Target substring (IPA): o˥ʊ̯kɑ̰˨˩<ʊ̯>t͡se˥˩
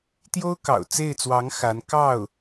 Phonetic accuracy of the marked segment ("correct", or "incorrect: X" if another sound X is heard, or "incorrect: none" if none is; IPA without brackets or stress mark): correct